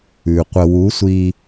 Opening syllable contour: low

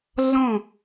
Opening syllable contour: falling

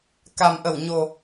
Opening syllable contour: low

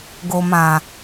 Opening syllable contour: low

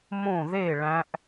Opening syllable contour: falling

